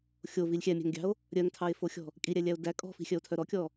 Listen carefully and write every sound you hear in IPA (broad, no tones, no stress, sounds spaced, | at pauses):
xʲ o v i lʲ xʲ æ mʲ æ̤ ŋ ɡʲ ɑ̤ o̯ | ɾʲ œ ŋ tʰ ɑ e̯ f o xʲ ɔ̤ | kʼ i ɾʲ æ lʲ æ o̯ d æ kʼ ɔ̤ f i̤ xʲ œ o̯ tʰ œ ɾ ɔ kʲ ɔ